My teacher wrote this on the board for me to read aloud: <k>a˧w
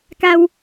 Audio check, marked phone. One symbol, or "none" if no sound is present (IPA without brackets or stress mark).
k